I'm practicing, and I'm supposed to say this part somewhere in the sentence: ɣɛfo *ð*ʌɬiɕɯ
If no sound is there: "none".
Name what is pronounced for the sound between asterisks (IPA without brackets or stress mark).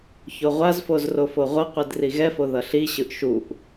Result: ð